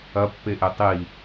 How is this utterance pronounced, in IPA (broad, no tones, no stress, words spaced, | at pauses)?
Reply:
ɐpːeʔe tˤi